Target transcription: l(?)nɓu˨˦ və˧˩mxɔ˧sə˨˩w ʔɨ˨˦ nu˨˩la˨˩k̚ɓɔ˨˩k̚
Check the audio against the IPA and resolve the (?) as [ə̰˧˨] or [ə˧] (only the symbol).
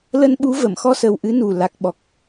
ə˧